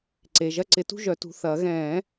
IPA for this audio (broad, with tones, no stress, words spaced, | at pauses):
ǀe˩˧˩ ʒɐ˥˧ǀɪ˨˩˦tṳ˥˧ ʒœ˨˩˦tṳ˩˧˩ θɐː˨˩˦ ɣɛ̃ː˨˩˦